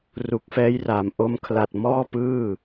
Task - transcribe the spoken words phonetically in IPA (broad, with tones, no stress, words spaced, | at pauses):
ru˨˩k̚fɛː˦˥j raː˩˦mʔo˦˥mkʰla˨˩t̚ mɔː˥˩pɯː˥˩